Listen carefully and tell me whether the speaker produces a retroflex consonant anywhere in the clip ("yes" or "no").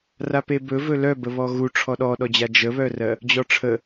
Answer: yes